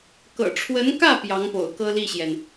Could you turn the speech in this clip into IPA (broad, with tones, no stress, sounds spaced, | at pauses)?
k ɤ̰˨˩ ʈ͡ʂʰ w ə˧˥ n k ä˥˩ p j ɑ˧˥ ŋ p o̰˨˩ ʊ̯ k ɤ˥ l i˥˩ ɕ j ɛ˩ n